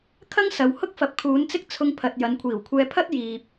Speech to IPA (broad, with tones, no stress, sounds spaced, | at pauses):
kʰ ɐ˥ ŋ s ɐ˨ w h ʊ˥ k̚ f ɐ˨ p̚ kʰ uː˨˧ n t͡s ɪ˥ k̚ t͡sʰ ʊ˧ ŋ pʰ ɐ˨ t̚ j ɐ˨˧ n kʷʰ iː˨˩ w kʷʰ ɛː˧ pʰ ɐ˥ t̚ j iː˨ p̚